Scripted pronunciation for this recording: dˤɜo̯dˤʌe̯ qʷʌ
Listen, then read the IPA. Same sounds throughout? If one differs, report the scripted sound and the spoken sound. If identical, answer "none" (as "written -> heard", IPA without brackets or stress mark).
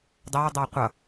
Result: none